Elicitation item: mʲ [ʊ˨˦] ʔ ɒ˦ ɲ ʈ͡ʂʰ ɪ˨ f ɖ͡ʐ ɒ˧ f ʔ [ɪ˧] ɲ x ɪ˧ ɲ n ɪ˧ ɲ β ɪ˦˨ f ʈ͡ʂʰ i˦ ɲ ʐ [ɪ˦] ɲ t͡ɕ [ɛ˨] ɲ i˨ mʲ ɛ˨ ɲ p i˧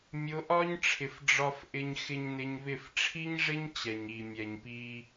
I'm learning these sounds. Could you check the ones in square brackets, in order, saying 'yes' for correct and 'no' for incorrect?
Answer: yes, yes, yes, yes

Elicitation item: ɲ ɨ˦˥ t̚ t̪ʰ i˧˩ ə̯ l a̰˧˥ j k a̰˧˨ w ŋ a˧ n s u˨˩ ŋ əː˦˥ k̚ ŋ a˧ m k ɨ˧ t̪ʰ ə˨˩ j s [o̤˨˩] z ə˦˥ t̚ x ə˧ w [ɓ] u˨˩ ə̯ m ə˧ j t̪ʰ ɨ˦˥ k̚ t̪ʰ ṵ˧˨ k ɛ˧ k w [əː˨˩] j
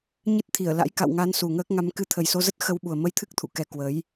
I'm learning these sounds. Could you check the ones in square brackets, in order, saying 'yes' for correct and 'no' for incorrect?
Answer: no, yes, no

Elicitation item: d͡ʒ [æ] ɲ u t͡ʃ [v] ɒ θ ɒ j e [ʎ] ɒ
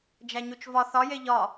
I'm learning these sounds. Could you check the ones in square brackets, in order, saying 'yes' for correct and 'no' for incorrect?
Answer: yes, yes, yes

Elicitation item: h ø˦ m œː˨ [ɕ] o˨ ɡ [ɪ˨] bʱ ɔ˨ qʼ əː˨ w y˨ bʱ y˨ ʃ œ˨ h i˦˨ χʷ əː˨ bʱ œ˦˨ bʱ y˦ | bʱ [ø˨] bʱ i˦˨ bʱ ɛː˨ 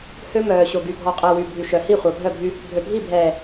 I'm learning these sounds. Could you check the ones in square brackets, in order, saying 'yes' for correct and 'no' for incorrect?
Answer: yes, no, yes

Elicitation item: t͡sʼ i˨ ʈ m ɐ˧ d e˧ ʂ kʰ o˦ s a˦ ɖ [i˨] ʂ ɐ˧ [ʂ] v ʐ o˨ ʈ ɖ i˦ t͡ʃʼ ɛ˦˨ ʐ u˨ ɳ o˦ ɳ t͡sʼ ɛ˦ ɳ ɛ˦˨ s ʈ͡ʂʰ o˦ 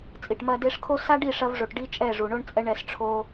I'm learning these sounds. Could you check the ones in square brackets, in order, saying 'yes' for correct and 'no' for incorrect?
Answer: no, no

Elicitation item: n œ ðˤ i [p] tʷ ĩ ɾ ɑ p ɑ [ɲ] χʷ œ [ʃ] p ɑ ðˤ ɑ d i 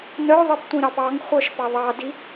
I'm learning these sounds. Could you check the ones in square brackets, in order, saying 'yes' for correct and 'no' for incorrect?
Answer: yes, no, yes

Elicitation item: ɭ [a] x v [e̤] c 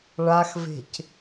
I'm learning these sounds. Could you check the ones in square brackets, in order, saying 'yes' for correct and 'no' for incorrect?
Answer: yes, yes

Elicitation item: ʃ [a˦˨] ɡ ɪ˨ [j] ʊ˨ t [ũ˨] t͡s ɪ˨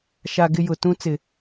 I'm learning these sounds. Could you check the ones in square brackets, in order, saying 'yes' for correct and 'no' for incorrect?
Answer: no, yes, no

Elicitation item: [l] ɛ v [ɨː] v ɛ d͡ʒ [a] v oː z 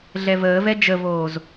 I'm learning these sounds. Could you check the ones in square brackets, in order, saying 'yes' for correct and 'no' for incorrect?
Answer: no, no, no

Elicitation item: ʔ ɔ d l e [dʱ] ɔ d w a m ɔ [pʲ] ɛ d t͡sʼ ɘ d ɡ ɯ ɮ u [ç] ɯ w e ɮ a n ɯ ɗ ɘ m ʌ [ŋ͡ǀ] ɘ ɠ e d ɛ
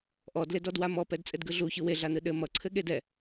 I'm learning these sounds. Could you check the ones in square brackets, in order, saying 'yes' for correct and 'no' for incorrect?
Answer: no, no, yes, no

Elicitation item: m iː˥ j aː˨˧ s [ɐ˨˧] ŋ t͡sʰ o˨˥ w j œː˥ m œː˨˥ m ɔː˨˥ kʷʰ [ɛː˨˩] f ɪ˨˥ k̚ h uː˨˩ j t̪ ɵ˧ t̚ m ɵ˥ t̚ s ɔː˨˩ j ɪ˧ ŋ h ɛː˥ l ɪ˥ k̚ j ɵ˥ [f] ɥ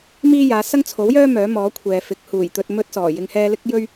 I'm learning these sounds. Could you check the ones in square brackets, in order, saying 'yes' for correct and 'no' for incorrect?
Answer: no, no, no

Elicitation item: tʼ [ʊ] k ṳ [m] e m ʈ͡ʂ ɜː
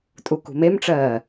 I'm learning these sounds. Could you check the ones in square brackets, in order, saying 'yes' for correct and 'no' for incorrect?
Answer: no, yes

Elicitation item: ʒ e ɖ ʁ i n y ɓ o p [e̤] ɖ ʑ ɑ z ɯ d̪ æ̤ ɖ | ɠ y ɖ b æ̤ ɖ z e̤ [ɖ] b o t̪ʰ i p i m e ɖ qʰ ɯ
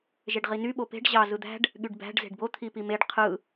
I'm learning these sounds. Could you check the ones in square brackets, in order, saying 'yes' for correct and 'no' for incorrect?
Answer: yes, yes

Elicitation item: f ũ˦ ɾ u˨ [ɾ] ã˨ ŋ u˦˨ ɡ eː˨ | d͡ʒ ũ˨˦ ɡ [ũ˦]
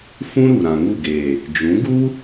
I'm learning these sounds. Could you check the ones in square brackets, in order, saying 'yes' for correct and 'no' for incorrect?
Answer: yes, no

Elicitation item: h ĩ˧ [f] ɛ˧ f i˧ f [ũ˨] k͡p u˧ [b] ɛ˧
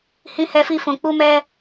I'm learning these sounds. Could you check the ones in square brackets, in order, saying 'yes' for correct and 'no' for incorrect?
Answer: no, yes, no

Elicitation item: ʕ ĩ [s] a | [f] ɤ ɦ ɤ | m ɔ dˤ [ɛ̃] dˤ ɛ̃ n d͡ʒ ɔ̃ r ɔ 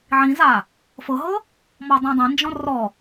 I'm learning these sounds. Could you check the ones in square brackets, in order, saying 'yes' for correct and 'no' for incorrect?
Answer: no, yes, yes

